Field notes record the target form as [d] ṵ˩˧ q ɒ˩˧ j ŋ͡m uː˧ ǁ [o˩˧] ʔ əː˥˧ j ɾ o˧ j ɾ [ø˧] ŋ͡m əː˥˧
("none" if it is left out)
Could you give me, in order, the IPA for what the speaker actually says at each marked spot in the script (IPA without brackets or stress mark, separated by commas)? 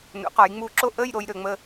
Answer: n, o˥˧, ø˧